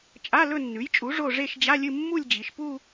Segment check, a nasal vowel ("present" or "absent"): absent